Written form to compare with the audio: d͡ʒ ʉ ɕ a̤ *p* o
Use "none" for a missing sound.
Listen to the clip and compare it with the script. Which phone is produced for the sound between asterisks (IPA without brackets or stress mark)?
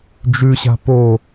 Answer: p